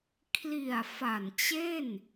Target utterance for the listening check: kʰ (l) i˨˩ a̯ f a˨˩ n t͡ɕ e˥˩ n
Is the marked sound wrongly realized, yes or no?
no